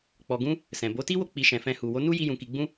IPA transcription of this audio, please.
k͡pɔ˨ɡũ˧ | sɛ̃˨bo˨˦ti˦wo˦˨ k͡pi˧ʃɛ̃˨fɛ̃˧ hu˨wo˨˦nu˦ ji˧ jũ˧ki˧ɡ͡bũ˦

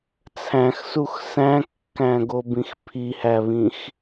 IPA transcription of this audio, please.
t͡sʰæ̃xsux sæ̃kːæ̃ɡobĩx pʰihæβĩx

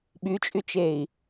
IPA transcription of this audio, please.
ɓyt͡ʃʼyt͡ʃei̯

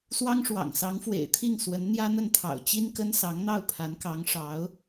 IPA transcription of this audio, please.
swɑ˥ŋʂwɑ̰˨˩ŋ sɑ˧˥ŋfwḛ˨˩ɪ̯t̪ʰi˥˩ŋ swə˧˥nn̪jä˥n̪ə˥˩nt̪ʰɑ̰˨˩ʊ̯ t͡ɕi˥nkə˥n sɑ˧˥ŋn̪ɑ˥˩ʊ̯ pʰa˧˥nkɑ˧˥ŋʂɑ˧˥ʊ̯

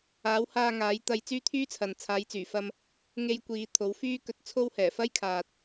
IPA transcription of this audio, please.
aː˨˥whaː˧ŋaː˨˥j t̪ɐ˧jt͡syː˥t̪ʰyː˥t͡sʰɐ˨n t͡sʰaː˨˧jt͡syː˨˩fɐ˧m | ŋe˧jkʷiː˨˧ t̪ʰo˨˥wfyː˥kɵ˧t̚t͡sʰo˥w hɛː˨˩fɐ˥jkʰaː˨t̚

